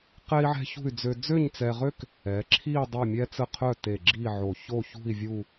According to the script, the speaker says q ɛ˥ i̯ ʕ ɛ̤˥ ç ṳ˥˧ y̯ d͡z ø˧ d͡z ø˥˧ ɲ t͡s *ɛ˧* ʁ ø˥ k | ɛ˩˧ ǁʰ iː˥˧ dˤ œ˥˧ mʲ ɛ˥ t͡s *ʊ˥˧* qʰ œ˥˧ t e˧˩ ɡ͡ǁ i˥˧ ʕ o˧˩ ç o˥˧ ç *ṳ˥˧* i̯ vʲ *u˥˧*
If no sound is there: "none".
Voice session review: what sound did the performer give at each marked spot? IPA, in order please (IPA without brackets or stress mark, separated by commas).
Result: ɛ˧, ə˥˧, ṳ˥˧, u˥˧